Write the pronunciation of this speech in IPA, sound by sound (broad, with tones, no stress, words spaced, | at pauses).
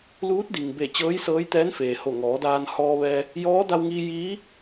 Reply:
luː˧˥t̚di˩ŋbe˧˩ t͡ɕɤː˧˥jsɤː˧˥jt̪ɛː˧˥nfeː˩ ho˧˩ŋɔː˩˧daː˧n hɔː˧ʋɛː˧ | jɔː˧˥da˧wŋiː˧ jiː˧˥